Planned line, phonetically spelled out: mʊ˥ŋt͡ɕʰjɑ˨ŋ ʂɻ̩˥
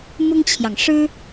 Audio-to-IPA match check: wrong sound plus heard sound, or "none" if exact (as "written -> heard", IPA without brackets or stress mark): none